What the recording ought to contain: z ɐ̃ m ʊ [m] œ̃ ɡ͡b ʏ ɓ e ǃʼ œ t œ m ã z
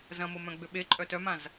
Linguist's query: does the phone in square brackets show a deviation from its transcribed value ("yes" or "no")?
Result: no